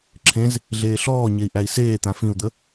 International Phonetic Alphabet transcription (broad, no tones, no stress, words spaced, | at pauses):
ǁʰẽz | ɮeːɬɔː ɲei̯ʔæi̯seː t̪ãfĩu̯d̪ə